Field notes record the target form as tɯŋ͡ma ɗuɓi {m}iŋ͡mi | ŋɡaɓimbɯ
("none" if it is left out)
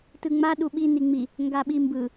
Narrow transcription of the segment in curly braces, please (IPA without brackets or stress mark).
n